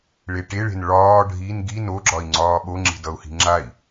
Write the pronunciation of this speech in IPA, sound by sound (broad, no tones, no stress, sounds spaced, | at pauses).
ɭ e ʈ e ɭ e̤ n ɭ ɒː ɖʱ i n ɡ i n o ɡ͡ǁ ɒ i̯ ŋ͡ǀ ɒː ɓ o ŋ͡ǁ i̤ d ʌ u̯ h i̤ ŋ͡ǁ a i̯